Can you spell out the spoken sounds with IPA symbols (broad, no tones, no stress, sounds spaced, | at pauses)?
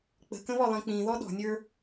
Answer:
k͡p ə̤ k ə̃ β ɔ lˠ ĩ k͡p ĩ ð ɔ ɗ ɔ̤ nʲ ə˞